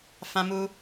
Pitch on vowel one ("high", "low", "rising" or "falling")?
high